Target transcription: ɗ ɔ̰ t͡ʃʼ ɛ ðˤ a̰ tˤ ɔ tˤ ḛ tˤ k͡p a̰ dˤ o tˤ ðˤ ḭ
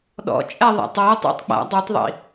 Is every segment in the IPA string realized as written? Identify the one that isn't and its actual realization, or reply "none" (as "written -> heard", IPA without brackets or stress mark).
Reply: ḛ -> ḭ